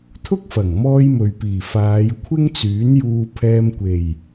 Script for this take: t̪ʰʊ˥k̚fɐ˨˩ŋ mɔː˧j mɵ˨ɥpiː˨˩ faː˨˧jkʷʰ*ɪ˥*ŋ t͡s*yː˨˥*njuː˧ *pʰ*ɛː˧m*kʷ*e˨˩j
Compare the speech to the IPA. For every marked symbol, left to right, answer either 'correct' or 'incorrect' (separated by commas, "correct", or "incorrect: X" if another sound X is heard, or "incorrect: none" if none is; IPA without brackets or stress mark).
correct, correct, correct, correct